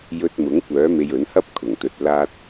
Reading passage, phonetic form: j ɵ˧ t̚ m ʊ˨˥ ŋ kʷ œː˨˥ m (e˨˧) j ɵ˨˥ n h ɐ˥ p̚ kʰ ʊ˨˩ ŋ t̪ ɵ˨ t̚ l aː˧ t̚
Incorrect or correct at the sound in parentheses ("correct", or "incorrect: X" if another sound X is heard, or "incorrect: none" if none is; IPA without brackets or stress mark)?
incorrect: e˧